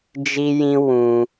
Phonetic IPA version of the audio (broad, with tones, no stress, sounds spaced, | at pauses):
d͡ʒ i˧ j ĩ˧ w ũ˧